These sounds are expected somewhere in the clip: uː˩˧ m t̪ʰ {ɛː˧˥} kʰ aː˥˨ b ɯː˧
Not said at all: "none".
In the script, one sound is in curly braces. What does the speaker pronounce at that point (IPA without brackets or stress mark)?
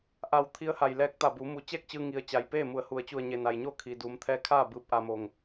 ɛː˧˥